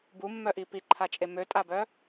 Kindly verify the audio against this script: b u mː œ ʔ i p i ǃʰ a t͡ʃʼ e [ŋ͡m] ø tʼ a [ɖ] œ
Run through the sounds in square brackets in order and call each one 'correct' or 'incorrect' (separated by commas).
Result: incorrect, incorrect